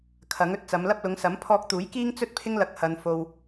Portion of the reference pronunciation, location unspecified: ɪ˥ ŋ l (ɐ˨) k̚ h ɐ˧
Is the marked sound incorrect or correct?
incorrect